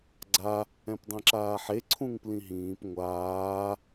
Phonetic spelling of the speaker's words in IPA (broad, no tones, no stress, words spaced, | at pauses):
ɡ͡ǀa | ɛ̃pdˤĩǁaːħe ǀʰũŋplĩɦĩːp ŋʷaː